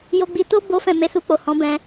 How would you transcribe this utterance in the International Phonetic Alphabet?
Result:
j o˧ ɡ͡b i˧ t o˦ b o˦ f ɛ̃˦˨ m e˧ s u˧ k͡p o˨ h ɔ̃˨˦ b ɛ̃˧

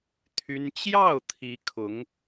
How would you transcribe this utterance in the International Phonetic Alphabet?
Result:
t̪ʰ y˥ n t͡ɕ j ɑ˥˩ ʊ̯ t̪ʰ i˧˥ kʰ ʊ˧˥ ŋ

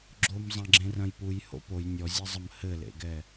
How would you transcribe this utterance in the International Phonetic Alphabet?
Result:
ɡ͡ǁ o m zˤ ɐ̃ ɡ͡ǁ ẽ r ɐ̃ j p u j h o̰ p o j nʲ ɔ zʲ ɛ zˤ ɐ m h ɘ l ḛ ɡ ɛ

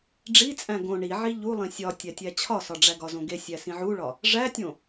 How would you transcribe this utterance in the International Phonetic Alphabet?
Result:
ɖ͡ʐ i t͡sʼ æ̃ ɡ õ ɳ i ʕ i ʎ u lˠ ĩ sʲ ɒ tʲ æ tʲ æ t͡ɕʰ ɒ s ɒ ɖ͡ʐ æ ɡ ɒ z õ ɡ e sʲ æ s ĩ ʕ u ɭ ɒ | ʐ æ tʲ õ

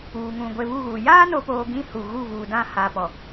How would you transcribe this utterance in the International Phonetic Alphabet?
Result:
uː˨ ŋ ũ˨ ɡʷ e˨ β u˦˨ ɣ u˨ j aː˦ n o˨ p oː˨ ɡ ĩ˦ h u˨ ɣ u˦˨ v uː˨ d ã˦˨ h a˨ p ɔ˨

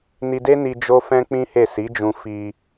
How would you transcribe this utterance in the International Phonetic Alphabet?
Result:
n i˧ d e˦ n i˧ d͡ʒ o˦ f ɛ̃˦ k͡p ĩ˦ h e˦˨ s i˨˦ d͡ʒ ũ˧ f i˧

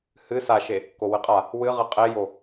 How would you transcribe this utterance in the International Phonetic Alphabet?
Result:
h ɨ s a ʃ e | k o w ɨ qʼ a | w ɨ ʁ ɨ qʼ e j o

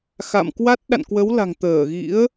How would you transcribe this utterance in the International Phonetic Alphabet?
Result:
x a̰˧˨ m k w a˦˥ t̚ ɗ a̰˧˨ n k w ə˨˦ w l a̤˨˩ ŋ t̪ əː˧˩ ɣ ḭ˧˥ ə̯

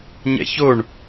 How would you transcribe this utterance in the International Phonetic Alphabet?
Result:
ɲ ɛ̰ ç o ɳ

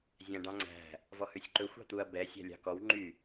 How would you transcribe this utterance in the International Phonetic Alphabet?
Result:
zʲ æ̃ ɖ ɑ̃ ŋ͡ǀ æ̤ | v ɔ h ʉ sʲ ǃ ɵ xʷ ɑ̤ t̪ u ɐ̯ b ɛ sʲ æ̤ lʲ ɑ̤ k ɔ w ŋ͡ǃ y

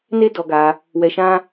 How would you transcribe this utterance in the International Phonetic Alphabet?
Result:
n e˦ d ɔ˧ ɡ a˧ | w ɛ˧ ʃ ã˦

